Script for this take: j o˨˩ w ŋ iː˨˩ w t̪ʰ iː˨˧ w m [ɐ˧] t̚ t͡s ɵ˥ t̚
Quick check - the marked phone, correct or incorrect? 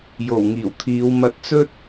correct